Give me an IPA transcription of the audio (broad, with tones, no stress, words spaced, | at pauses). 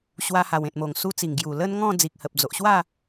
ɕwa˧ha˨˩wẽ˨t̚mo˨˩ŋ su˧t͡si˨˩ŋ ɡju˨˩lə˦nŋɔ̃˥˧ d͡zi˨k̚hə˨p̚d͡zo˨ʔɕwa˥˧